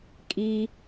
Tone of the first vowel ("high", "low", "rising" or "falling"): high